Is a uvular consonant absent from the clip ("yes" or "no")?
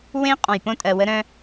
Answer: no